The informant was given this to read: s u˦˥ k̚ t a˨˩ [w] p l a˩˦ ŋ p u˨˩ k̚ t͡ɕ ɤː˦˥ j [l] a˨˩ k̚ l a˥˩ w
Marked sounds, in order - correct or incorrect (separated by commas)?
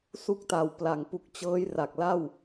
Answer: correct, incorrect